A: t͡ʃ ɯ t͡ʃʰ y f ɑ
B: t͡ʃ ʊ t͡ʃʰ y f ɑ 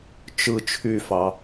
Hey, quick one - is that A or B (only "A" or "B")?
A